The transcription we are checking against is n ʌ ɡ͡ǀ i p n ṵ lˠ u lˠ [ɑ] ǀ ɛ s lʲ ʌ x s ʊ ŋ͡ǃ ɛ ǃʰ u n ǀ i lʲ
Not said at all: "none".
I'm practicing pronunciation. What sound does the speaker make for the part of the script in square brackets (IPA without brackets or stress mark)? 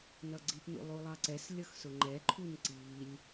ɑ